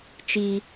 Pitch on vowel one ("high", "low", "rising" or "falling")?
high